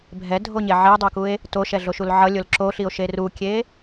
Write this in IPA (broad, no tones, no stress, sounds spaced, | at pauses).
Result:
bʱ ɛ dʱ o ɲ e ʕ e dˤ o k u e̯ | t o ʃ ɛ ɮ o ʃ u l ʕ ʌ lʲ o l ǁ o ɬ i o̯ ʃ e r u kʲ e